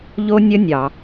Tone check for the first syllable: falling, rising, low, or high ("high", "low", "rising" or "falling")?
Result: high